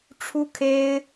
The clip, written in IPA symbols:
ʈ͡ʂʰu˥kʰe˥ɪ̯

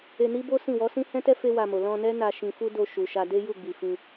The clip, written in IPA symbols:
e˧ni˦bo˦ sĩ˦˨wɔ˨˦sĩ˦ hɛ̃˦tɛ˦ fe˦wa˧mo˨ lɔ̃˧nɛ˦ na˧ʃĩ˧fu˦ do˧ʃu˨ʃa˧ de˦ju˦˨ɡ͡bi˨fĩ˧

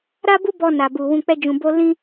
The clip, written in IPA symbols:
ɾa˦bu˦bɔ˧ na˨bu˨wũ˧ k͡pɛ˦ d͡ʒũ˧bo˦ lĩ˦

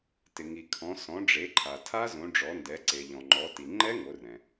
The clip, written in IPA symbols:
tɪ˩ ŋi˩kʰɔ̃˩˧ sɔ̃˩˧ɖ͡ʐe˩˧ǃʰa˩ tʰa˦˥zõ˩˧ɖ͡ʐɔ˩˧ ndɛ˩˧ǀe˩ʎɔ̃˩ŋ͡ǃɔ˩˧ ti˩ŋ͡ǃɛ˦˥ŋo˩˧rɛ̃˩

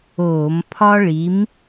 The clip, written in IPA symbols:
oː˧˩˧mpʰɒ˥ ɭi˨˦m

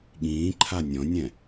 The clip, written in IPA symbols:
ɠĩːǃʰa nʲɔ̃nʲɛ̃

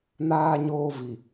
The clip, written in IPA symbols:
naː˨ɲoː˨ vi˨

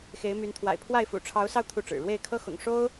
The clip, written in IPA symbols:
xe˨˦ɪ̯my˨˦n t̪ʰwa̰˨˩ɪ̯pʰwa˥˨ɪ̯fṵ˨˩ ʈ͡ʂʰɑ˨˦ʊ̯sɑ˧ʊ̯ t̪ʰu˥˨ʈ͡ʂɻ̩˨˩ ɻwe˥˨ɪ̯kʰɤ˦xʊ̰˨˩ŋ ʂo˦ʊ̯

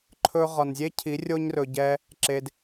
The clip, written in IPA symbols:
ǃʰɵ˧ʁɒ˨nzʲe˦cʰi˨˦ rʲo˦ɲrɵ˧ɟɛ˦ | ǁe˧d

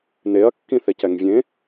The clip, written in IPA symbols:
neɐ̯kːĩθecɛŋ vʲẽ

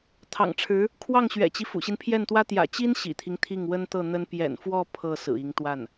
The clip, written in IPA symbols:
t̪ʰɑ̰˨˩ŋʈ͡ʂʰɻ̩˧˥ | kʰwɑ˥˩ŋɕɥɛ̰˨˩t͡ɕi˦ fṵ˨˩ɕi˦npʰjɛ˥˩nt̪wä˥ t̪jä̰˨˩t͡ɕi˥n ɕḭ˨˩t̪ʰi˦ŋ t̪ʰi˥˩ŋwə˥nt̪ɤ˥˩n̪ə˥n pjɛ̰˨˩nfwɔ˥˧ pʰɤ˥˩ sɹ̩˨˩i˧˥ŋt̪wa˥˩n

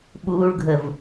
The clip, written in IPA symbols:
ɓuːɭɡʱəv

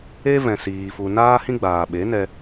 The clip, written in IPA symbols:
e˦ vɛ̃˨siː˨ fu˨naː˦hĩ˦ ɡ͡baː˨ɓe˨˦nɛ˧

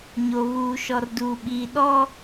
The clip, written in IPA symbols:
ɲo˨βuː˨ ʃɔ˨rduː˨ɓiː˨ ɗɔ˦

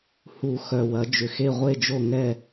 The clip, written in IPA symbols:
hu˨˩˦ xœ˨wɐ˩˥ d͡ʒʏ˨xe˥˨ ʁʷe˥˨d͡ʒo˥˨ ŋɛ˥˨

